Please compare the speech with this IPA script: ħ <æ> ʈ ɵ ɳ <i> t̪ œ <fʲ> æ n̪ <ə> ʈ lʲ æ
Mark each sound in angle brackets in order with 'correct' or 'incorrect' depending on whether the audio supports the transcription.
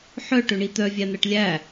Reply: incorrect: œ, correct, incorrect: vʲ, incorrect: æ

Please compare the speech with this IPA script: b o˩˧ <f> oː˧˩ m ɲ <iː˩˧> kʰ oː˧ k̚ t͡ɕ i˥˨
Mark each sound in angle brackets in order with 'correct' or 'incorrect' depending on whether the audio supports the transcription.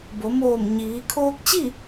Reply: incorrect: m, correct

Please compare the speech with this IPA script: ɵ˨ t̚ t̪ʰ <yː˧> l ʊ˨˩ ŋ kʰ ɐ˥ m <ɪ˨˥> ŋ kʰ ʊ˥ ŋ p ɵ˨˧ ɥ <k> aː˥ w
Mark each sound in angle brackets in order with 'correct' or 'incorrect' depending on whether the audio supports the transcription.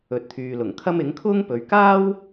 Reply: incorrect: yː˨, correct, correct

